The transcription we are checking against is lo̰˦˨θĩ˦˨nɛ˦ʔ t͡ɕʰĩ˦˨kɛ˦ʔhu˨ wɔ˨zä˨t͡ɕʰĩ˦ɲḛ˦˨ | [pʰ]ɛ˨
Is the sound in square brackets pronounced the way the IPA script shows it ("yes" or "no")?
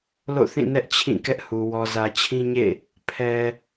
yes